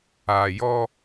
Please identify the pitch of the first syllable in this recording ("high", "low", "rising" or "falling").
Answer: low